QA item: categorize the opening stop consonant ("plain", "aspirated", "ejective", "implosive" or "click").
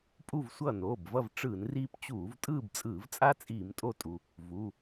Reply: ejective